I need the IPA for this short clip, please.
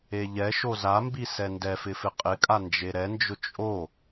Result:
e ʎ ɛ ʃ o z a m b i s ɛ n d ɛ f ɪ f ɪ qʼ ɪ kʼ a n d͡ʒ e ɾ ɛ n d͡ʒ ʊ t͡ʃʼ o

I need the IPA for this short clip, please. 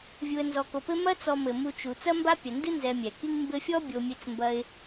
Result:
vʲ u˨ ə̯ n z ɔ˨ k o˨ p ɘ˥ m ɐ˥ t͡s ɔ˨ m ɘ˩ m u˨ t͡ʃ u˩ t͡s ɐ˥ m b a˥ pʲ ɐ˩ n d ɨ˥ n z ɛ˨ mʲ ɛ˩ k i˦ ŋ m b ɘ˦ fʲ ɔ˥ bʲ o˨ mʲ ɨ˨ t͡s m b ɐ˨ ɪ̯

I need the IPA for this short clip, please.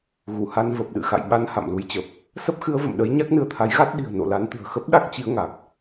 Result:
ɣ u˧˩ h a˧ n v ə˨˩ p̚ ɗ ɨ̰˧˨ x a̰˧˨ j ɓ a˧ n h a̰˧˨ m l u˨˦ j t͡ɕ ə˨˩ p̚ | s ə˦˥ p̚ x ɨ˨˦ ə̯ v ə̰˧˨ m ɗ ə˨˦ j ɲ a˦˥ k̚ n ɨ˧ ə̯ t̪ʰ a˨˦ j ɣ a˦˥ t̚ ɗ i̤˨˩ ə̯ n o̰˧˨ l a˨˦ n t̪ ɨ̤˨˩ ə̯ x ə˦˥ p̚ ɗ a˦˥ k̚ t͡ɕ i˨˦ ə̯ ŋ a˨˩ k̚

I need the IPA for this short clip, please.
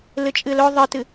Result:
l ɨ t͡ʃʼ ɨ l ɵ ðˤ ɨ t ɨ

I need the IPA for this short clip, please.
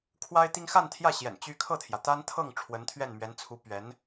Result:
kʰ w a˥ ɪ̯ t̪ i˥ ŋ x a˥˧ n t̪ʰ j ä˥˩ ɕ j ɛ̰˨˩ n t͡ɕ y˥ kʰ ɤ˥˩ t̪ʰ j ä˩ t̪ a˥ n t̪ʰ ɤ˥˩ ŋ ʈ͡ʂʰ w ə˧˥ n t̪ʰ ɥ ɛ˥˩ n m ɥ ɛ˧˥ n t͡sʰ u˧˥ p ɥ ɛ˧˥ n

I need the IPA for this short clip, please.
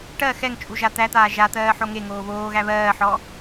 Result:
ʈ ɜ x ɛ ŋ t͡ʃʼ u ʒ a t̪ æ t̪ aː ʒ a t̪ ɜː ħ o ŋ e ŋ oː β oː ɣ æ β ɜː ħ ɔ

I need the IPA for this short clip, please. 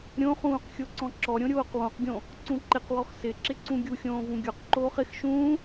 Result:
ɾʲ õ χ ũː q xʲ o ǀ ɔ̃ ǁ ɔ ɾʲ õ ɾʲ oː q w õ q ɡʲ õ | ǀ ũ ǃ ɪ q w ɔ x s ɪ ǁ ɪ ǀ ũ ɡʲ u xʲ õː v ũ ɡʲ ɔ q ǃ oː χ ɪ x ʃ ũː

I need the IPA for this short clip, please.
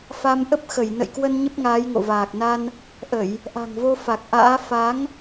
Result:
f a˧ m ʔ ə˦˥ p̚ x ə˧˩ j n ə̰˧˨ j k w ə˧ n ɲ ə˦˥ p̚ ŋ aː˨˦ j ŋ o̰˧˨ v aː˨˩ k̚ n a˧ n | ʔ ə˧˩˨ j | ʔ a̤˨˩ ŋ v o˧ f a˨˩ k̚ ʔ a̰ː˧˥ f a˨˦ ŋ

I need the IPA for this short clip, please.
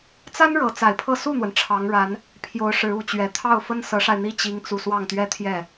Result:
t͡s a˥ n ɻ ɤ˧˥ t͡s a˨˩ ɪ̯ pʰ ɤ˥˧ s u˥˩ n̪ w ə˩ n ʈ͡ʂʰ ɑ˧˥ ŋ ɻ a˧˥ n | pʰ j o˧˥ ʊ̯ ʂ ɻ̩˧˥ u˨˩ t͡ɕ ɥ ɛ˧˥ t̪ʰ ɑ˥˩ ʊ̯ f ə˥ n s ɤ˧˥ ʂ a˧ ɪ̯ n̪ i˥˩ t͡ɕ i˥ ŋ t͡s u˥˧ s w ɑ˥˧ ŋ t̪ ɥ ɛ˥˧ t̪ʰ j ɛ˥˩

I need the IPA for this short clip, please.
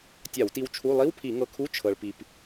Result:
tʲ a˧˩˧ w t i˧ w t͡ʃʰ u˧˥˧ lˠ i˧˥˧ w pʰ i˧˩˧ ŋ ɤ˧ kʰ u˧˥˧ t͡ʃʰ ɤ˧ ɭ p i˧ p

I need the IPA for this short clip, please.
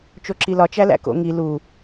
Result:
t͡ʃ o ǁ i l ɒ t͡ʃ æ l æ̰ k o̰ ŋ i l u

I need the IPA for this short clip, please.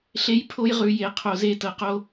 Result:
ɬ e˦ j pʰ o˦ j ʁ ʉ˨˦ j e˨ qʰ o˧ z e˦ t ɤ˧ q o˦

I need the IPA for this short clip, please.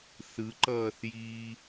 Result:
θ ɯ ǃ ʌː θ j iː

